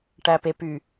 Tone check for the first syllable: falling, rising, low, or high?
low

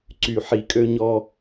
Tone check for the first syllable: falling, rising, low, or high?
low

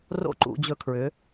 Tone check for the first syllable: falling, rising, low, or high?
falling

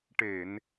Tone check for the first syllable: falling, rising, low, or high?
low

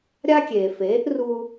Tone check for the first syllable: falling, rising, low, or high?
high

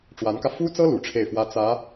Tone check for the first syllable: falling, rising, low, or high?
rising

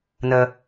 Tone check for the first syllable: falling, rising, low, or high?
low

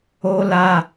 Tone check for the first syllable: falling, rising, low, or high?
high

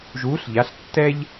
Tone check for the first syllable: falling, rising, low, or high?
rising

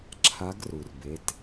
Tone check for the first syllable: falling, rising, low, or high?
rising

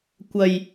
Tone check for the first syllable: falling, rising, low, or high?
low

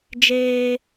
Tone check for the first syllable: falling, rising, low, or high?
high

